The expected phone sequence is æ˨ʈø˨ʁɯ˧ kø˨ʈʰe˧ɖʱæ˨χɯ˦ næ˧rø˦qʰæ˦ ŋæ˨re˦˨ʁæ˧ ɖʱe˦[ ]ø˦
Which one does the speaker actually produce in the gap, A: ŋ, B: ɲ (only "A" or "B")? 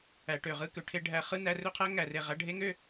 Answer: A